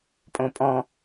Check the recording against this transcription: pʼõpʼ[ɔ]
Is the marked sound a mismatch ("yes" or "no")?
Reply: yes